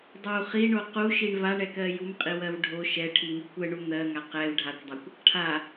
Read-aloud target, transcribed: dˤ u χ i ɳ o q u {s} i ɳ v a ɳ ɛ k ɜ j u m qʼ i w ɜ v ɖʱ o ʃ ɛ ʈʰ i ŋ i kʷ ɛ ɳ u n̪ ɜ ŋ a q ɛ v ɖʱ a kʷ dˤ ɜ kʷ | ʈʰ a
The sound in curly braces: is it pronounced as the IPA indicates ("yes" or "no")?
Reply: no